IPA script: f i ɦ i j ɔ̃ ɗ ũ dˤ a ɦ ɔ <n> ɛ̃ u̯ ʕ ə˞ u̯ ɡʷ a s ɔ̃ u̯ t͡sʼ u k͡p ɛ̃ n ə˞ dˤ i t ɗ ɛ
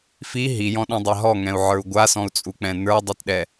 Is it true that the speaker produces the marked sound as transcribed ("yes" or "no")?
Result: no